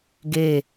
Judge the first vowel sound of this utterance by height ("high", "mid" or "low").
mid